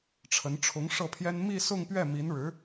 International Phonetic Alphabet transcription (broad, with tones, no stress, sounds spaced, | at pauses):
ʈ͡ʂʰ ə˧˥ n ʈ͡ʂʰ ʊ˧˥ ŋ ʂ ɤ˥˩ pʰ j ɛ˥ n m i˥˧ s ʊ˥˧ ŋ p ɥ ɛ˥˩ m i˧˥ n ɻ ɻ̩˧˥